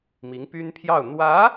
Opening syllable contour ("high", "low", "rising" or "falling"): rising